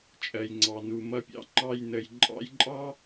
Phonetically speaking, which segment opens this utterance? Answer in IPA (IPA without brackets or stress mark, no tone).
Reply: t͡ʃʼ